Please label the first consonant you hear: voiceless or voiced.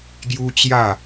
voiced